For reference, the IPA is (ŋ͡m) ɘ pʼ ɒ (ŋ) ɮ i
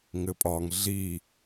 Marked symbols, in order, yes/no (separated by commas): no, yes